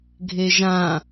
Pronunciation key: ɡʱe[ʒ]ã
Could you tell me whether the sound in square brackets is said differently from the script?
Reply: no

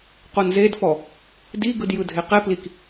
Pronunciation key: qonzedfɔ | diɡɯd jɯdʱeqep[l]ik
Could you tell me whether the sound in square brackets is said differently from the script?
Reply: no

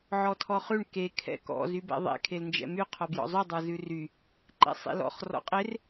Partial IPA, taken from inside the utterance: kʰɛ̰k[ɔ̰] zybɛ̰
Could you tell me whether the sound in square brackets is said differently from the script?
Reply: no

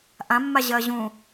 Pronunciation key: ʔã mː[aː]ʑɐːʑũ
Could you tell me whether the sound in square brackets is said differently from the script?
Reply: yes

